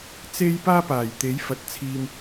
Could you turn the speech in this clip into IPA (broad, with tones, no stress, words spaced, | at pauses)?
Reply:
t͡se˥j paː˥paː˨˩jt̪e˨˥j fɐ˨˥t̚t͡sʰiː˧m